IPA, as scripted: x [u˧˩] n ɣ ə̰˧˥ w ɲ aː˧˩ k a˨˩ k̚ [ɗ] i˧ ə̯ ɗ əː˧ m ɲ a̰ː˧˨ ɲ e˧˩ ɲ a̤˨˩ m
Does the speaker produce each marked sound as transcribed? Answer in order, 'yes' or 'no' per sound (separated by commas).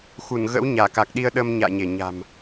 yes, yes